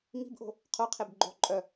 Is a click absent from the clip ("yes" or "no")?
no